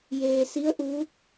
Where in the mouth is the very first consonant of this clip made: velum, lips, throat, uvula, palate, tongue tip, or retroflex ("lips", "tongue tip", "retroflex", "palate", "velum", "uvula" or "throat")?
palate